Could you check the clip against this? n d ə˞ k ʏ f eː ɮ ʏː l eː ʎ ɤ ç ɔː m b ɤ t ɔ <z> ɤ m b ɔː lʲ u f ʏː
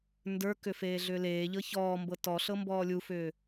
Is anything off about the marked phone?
yes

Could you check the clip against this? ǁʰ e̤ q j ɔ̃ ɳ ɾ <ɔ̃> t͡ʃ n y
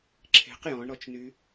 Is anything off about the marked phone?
yes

